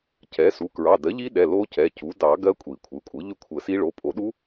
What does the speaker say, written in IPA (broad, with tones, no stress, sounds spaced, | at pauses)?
c ɛ˩˥ s u˩˧˩ k ɹ ɑ˩˧˩ d ɜ˩˥ ʎ i˦˥ ɗ ɛ˩˧˩ l o˦˥ c ɛ˩˧˩ c u˩˥ d ɑ˨˩˦ ɡ ɜ˦˥ kʷʼ i˨˩˦ kʷʰ ɯ˩˧˩ kʷʼ ɯ˩˥ ʎ ʏ˥˨ kʷʰ ə˨˩˦ s i˦˥ ɭ o˩˧˩ pʼ o˨˩˦ ɗ u˦˥